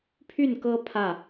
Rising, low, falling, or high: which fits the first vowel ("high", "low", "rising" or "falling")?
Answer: falling